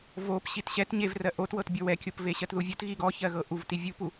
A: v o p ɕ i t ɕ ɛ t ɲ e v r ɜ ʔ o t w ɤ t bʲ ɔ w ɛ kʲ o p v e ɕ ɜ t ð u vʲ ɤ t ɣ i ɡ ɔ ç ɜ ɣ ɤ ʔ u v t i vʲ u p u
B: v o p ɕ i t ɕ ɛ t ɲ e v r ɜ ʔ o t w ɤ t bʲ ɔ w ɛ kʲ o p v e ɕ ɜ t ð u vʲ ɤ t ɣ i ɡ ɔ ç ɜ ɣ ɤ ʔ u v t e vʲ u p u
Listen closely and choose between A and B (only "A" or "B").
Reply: A